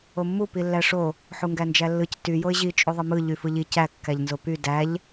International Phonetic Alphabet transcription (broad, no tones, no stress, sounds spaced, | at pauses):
o mː u p i lː æ ʂ o | ħ u ŋ ɡ æ n d͡ʒ æ lː ɯ c t y j o ɪ̯ ʑ i t͡ʃʼ u ðˤ ɯ m ɯ ʎ y f ɯ ʎ i c æ kː æ ʎ n z o p y d æ ʎ